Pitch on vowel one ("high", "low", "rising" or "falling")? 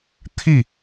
falling